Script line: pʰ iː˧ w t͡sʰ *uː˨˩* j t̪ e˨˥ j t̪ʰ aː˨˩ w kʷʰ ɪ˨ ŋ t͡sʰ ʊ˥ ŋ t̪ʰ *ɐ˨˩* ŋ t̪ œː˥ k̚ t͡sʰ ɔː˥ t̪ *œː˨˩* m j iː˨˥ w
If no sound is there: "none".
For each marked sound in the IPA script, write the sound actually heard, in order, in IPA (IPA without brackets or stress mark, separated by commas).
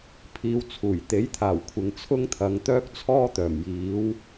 uː˨˩, ɐ˨˧, œː˨˩